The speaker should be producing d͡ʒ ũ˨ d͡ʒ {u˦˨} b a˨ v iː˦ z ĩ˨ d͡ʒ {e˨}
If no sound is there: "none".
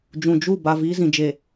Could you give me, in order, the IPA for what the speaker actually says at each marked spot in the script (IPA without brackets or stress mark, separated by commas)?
u˦˨, e˨